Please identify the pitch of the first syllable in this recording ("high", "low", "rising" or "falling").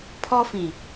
high